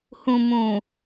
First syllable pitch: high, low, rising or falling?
low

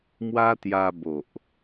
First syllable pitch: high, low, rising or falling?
high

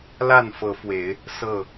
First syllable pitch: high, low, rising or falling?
falling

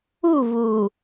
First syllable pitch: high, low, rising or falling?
falling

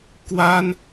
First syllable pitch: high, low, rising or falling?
high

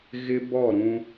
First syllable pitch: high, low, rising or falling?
high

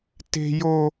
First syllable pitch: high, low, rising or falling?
high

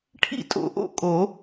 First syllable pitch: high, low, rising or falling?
falling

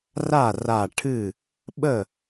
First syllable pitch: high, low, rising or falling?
falling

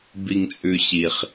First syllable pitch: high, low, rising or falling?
low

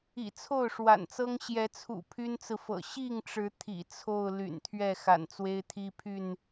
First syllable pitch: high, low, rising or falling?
low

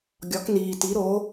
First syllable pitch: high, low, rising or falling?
rising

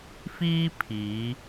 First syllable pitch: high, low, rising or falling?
high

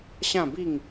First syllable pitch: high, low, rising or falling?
falling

